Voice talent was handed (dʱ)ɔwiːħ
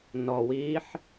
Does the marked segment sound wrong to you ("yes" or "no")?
yes